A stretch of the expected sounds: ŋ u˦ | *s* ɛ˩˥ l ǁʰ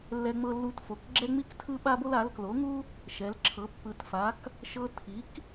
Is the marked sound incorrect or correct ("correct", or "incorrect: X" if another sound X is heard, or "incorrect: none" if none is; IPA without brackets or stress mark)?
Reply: incorrect: ʃ